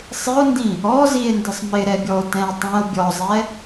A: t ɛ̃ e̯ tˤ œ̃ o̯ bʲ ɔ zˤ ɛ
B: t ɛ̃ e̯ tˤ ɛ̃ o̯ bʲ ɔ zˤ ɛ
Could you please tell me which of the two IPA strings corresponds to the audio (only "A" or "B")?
B